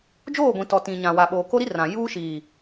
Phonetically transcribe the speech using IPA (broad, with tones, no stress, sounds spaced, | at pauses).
d͡ʒ oː˦˨ ɡʷ ĩ˨ t ɔ˨ t ĩ˨ ɲ ã˨ w a˨ ɓ oː˨ k o˦ ɾ i˦ r ã˨ j uː˦ ʃ iː˨